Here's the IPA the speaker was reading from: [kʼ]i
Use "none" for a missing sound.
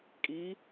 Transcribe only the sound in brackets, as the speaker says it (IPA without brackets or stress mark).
kʼ